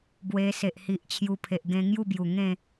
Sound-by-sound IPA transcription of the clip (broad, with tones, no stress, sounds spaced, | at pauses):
b w e˧ s e˨ ʔ h i˨ ʔ t͡ɕʰ j u˧ pʰ e˨ ʔ ɡ ẽ˧ ŋ j u˥˧ b j u˨˩ ŋ ẽ˥˧